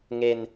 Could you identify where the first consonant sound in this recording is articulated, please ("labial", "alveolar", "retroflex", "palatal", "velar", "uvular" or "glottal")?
velar